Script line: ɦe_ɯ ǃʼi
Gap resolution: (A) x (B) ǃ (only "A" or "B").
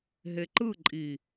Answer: B